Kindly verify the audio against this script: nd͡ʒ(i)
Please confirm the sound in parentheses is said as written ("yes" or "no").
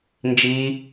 yes